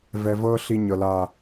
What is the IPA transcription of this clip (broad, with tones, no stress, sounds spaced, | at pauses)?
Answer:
v ɛ˨ v ɤː˦ ɬ i˦ ɲ ɤ˨ l a˦˨